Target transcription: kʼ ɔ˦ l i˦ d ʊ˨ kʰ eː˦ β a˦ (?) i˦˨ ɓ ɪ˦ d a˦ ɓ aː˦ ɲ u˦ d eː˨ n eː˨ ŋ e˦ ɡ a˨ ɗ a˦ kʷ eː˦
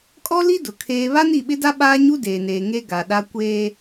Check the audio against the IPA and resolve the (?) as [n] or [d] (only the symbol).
n